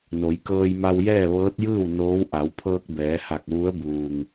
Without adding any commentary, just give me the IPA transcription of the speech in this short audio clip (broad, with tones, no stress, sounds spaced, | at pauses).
n o˩˧ j k ɤː˧ j m a˧ w j ɛː˥˨ ʋ ɤː˧˥ t̚ j ɯː˥˨ w n oː˧˥ w ʔ a˩˧ w pʰ ɤː˧ k̚ b ɛː˩˧ h a˧˩ k̚ ʋ u˧˥ ə̯ b uː˩ ŋ